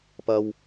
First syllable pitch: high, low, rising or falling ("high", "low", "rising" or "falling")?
high